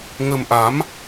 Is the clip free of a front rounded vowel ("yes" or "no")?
yes